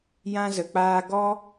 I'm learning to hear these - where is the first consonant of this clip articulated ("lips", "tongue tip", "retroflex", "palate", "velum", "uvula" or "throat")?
palate